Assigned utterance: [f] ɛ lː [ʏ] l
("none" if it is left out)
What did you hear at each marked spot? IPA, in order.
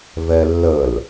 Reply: v, ə

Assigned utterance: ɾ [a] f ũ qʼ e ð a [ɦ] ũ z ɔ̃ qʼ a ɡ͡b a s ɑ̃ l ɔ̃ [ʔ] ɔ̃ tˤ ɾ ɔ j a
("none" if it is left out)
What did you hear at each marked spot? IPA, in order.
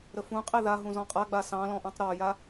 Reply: ə, ɦ, ʔ

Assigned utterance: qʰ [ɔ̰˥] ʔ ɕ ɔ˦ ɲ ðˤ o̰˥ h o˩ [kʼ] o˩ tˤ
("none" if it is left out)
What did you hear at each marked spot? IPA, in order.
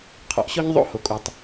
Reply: ɔ̰˩, kʼ

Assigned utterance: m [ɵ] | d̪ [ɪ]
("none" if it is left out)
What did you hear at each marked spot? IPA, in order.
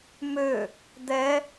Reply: ø, ɛ

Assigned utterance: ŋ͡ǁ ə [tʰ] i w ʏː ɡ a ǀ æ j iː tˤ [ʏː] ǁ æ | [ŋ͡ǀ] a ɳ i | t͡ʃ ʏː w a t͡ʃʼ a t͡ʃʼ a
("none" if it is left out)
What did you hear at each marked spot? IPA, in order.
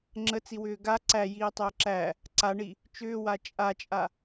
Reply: t͡s, ʏː, ǀ

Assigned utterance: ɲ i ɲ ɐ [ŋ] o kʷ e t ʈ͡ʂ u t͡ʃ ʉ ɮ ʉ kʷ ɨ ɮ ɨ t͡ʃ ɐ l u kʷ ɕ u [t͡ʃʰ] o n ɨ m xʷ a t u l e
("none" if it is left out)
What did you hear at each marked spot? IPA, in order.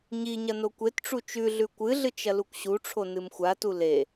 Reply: n, ʈ͡ʂʰ

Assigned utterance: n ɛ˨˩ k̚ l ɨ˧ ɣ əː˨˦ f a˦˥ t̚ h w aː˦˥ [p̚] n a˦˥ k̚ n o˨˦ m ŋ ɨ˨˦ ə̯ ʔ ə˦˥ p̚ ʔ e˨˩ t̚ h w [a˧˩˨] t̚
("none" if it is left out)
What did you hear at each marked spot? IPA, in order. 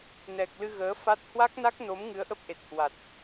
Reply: k̚, a˨˩

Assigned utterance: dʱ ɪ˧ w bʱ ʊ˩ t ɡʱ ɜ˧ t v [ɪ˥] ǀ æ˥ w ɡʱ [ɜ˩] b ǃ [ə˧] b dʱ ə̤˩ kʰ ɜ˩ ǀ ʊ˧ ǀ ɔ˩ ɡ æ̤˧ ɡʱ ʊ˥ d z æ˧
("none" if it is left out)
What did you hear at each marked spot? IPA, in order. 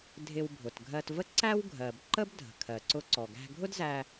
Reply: ə˥, ɜ˩, ə˥

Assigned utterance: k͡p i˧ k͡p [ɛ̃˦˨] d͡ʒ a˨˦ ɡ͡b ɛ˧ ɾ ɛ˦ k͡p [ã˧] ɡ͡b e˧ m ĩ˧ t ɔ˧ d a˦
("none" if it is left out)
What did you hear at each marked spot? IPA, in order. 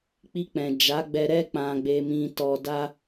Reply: ɛ̃˨, ã˧

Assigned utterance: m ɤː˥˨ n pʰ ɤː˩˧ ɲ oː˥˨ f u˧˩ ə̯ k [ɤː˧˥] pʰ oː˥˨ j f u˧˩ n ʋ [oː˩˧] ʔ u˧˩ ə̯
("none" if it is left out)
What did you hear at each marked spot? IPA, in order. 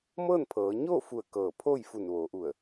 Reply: ɤː˧˩, oː˩˧

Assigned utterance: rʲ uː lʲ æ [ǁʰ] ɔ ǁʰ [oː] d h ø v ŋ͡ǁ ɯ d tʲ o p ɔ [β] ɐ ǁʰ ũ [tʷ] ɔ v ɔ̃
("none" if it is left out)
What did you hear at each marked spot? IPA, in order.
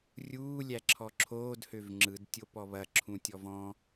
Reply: ǁʰ, oː, β, tʲ

